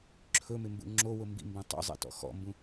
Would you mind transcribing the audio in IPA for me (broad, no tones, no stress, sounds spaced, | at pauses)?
ǁʰ ɵ m ɪ m b ṵ ŋ͡ǁ o w ʊ m b ḭ m b õ tˤ o̰ zˤ ḭ t ɔ̰ x ɔ̰ m b ũ